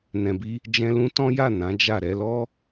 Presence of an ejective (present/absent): absent